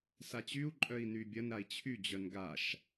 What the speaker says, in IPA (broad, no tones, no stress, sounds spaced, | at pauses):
s a t͡ɕ y u̯ ǃʼ œ i̯ n y bʲ ɐ n ɾ a i̯ t͡ɕʰ y d͡ʑ œ n ɡ a ʃ